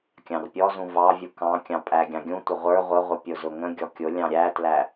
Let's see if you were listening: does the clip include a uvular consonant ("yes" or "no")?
yes